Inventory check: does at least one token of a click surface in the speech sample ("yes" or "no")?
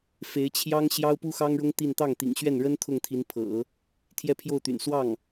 no